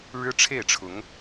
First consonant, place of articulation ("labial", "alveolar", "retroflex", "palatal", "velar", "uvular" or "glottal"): retroflex